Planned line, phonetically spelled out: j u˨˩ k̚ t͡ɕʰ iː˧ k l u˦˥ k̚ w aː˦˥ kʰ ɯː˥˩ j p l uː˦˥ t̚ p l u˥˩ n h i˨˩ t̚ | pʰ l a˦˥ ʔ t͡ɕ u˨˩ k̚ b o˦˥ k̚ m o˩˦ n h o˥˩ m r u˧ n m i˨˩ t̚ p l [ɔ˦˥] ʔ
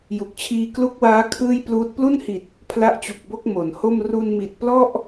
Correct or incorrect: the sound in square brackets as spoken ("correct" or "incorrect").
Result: incorrect